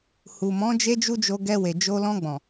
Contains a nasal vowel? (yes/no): yes